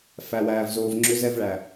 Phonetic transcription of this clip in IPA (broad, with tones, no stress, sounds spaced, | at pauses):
f æ˨ w æː˨ v z oː˨ v ŋ͡ǁ ʏ˨˦ z ɛ˧ v ɭ æ˨